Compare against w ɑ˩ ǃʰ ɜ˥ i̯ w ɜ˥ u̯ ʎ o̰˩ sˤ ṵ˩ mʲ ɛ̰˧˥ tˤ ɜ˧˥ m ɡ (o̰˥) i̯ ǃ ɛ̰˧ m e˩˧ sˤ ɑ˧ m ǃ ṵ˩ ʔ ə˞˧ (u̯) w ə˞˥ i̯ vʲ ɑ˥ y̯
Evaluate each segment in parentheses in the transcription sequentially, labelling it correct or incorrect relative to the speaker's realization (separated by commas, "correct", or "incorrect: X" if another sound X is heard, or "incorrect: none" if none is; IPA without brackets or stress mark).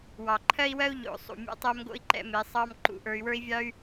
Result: correct, incorrect: y̯